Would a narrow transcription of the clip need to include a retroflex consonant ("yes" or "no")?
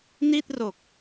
no